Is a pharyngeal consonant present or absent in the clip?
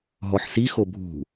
present